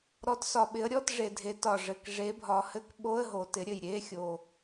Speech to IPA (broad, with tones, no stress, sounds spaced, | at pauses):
ɾ ɔ˨˦ t s ɒ˨˩ ɓ ɪ˨˦ ə̯ ɾʲ ɔ˧˥˧ t ʐ e˨˩ dʱ e˨˦ t ɒ˨˩ ʐ ɘ˨˩ k ʐ e˨˦ bʱ ɒ˨˦ h ɘ˧˥˧ k ɓ o˧˥˧ ə̯ ɦ o˨˩ t ɪ˨˦ ɾʲ ɘ˨˩ j ɾʲ e˧˥˧ xʲ o˨˩